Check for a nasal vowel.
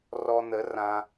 present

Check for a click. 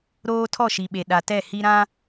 absent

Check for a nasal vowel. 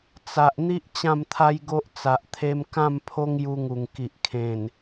present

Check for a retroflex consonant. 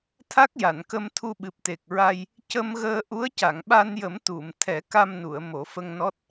absent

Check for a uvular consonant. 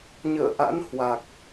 absent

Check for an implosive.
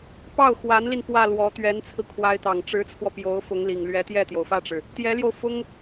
absent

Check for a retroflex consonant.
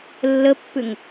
absent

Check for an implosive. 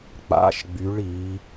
absent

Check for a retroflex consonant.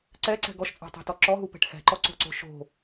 present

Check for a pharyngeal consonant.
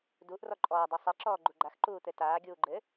absent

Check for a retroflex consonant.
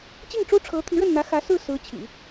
present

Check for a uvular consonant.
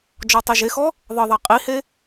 present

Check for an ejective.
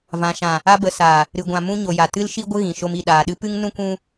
absent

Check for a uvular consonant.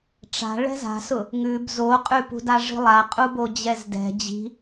present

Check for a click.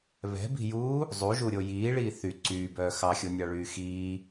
present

